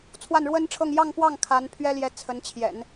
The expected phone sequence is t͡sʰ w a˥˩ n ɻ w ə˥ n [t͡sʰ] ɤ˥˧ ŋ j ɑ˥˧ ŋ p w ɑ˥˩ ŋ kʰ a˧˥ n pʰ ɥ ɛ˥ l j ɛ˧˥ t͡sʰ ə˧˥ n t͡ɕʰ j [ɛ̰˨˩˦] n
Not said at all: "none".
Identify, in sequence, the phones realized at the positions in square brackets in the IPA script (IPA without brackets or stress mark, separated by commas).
ʈ͡ʂʰ, ɛ̰˨˩˦